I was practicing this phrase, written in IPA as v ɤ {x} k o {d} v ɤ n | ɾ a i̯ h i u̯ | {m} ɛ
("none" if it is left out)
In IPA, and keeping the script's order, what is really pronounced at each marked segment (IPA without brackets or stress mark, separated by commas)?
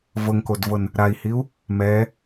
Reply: ŋ, d, m